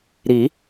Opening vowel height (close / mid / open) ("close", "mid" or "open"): close